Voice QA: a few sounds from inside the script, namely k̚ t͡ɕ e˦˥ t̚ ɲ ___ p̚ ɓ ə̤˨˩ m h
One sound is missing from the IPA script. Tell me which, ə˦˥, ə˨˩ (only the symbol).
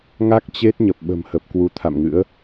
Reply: ə˨˩